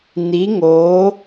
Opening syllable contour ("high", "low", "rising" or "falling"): rising